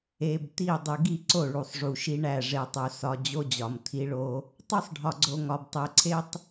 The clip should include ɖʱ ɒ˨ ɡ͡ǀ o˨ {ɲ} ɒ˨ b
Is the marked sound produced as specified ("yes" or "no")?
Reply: no